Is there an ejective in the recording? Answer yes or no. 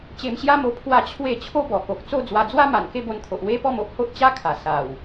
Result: no